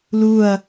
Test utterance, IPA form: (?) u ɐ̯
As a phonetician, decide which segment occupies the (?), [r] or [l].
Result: l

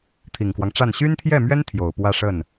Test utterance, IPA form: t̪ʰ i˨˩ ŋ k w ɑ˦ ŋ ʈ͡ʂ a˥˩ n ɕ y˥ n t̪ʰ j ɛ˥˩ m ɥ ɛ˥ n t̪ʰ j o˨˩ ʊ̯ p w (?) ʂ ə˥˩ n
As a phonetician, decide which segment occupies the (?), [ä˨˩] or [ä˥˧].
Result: ä˥˧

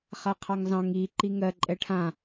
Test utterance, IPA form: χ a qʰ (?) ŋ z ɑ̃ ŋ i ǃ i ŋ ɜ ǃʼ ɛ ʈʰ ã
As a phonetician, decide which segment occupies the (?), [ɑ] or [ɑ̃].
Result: ɑ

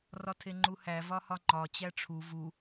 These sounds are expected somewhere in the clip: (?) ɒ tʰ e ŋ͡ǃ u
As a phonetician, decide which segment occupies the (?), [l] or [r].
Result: r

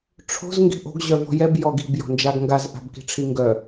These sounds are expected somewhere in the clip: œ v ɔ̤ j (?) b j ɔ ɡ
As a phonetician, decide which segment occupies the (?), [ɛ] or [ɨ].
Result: ɛ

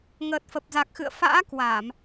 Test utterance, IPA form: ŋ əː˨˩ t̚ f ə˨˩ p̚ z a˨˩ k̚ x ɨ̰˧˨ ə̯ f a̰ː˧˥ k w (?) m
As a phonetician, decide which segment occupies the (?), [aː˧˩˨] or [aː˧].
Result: aː˧˩˨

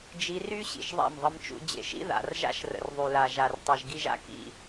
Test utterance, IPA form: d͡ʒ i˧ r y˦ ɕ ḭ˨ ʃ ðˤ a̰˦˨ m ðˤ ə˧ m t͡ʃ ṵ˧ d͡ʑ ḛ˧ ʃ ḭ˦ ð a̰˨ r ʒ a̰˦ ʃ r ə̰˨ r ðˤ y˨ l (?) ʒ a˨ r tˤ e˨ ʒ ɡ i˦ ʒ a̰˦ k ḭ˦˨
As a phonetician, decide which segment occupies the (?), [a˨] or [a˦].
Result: a˨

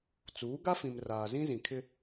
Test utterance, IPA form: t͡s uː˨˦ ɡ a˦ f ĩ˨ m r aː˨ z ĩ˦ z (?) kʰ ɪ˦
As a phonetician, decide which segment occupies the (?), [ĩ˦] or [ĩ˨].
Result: ĩ˨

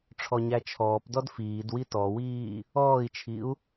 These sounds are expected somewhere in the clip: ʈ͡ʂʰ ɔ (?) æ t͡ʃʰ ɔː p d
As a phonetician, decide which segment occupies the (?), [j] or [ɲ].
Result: ɲ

